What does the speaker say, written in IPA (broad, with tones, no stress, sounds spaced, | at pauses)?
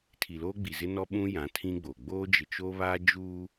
tʰ i˨ l oː˦ ɡ͡b i˨ z ɪ˦ n ɔ˦ ɓ ũ˦ j ã˨˦ tʰ ĩ˦ ɡ͡b o˨ ɡ͡b oː˦ d͡ʒ ɪ˨ t͡ʃ o˦ β aː˦ d͡ʒ uː˦